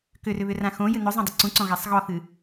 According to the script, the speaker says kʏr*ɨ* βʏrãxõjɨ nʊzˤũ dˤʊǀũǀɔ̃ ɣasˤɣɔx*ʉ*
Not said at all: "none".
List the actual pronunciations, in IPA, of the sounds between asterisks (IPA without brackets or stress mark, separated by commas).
ʏ, ɨ